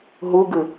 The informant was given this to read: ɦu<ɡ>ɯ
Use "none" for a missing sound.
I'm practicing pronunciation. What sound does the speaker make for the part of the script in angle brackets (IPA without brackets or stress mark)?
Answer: ɡ